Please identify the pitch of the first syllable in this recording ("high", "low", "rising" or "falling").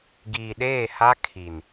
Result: low